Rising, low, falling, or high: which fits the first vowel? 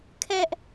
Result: high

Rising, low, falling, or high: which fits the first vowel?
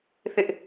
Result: high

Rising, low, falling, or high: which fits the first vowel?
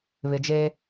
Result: low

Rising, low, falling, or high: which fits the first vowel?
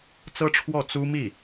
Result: high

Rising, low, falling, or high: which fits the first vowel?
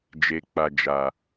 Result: low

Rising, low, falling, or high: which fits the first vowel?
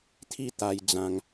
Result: falling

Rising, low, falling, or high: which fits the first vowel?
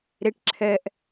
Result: rising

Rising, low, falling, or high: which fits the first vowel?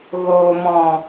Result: low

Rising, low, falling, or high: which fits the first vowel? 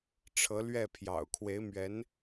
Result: rising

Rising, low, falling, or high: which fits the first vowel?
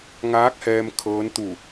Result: rising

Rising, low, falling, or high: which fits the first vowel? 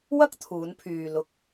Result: high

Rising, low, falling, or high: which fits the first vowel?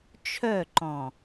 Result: falling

